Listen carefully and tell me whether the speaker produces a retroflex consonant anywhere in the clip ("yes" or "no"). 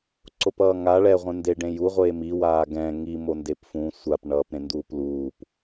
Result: yes